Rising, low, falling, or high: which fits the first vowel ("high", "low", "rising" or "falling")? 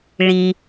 low